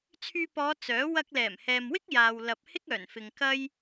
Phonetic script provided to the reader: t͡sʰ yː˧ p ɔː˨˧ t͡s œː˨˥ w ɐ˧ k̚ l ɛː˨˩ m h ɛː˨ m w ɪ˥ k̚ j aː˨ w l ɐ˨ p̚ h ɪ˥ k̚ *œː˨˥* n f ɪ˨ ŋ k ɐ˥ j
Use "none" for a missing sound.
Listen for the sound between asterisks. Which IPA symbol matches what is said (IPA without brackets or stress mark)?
œː˨˩